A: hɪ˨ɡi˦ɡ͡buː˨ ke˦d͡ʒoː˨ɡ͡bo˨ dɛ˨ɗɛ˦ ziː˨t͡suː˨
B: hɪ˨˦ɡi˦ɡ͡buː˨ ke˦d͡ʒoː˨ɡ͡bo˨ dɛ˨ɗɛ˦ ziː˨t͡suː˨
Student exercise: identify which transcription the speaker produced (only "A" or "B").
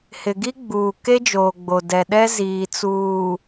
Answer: A